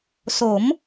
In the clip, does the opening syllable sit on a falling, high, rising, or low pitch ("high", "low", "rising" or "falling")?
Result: rising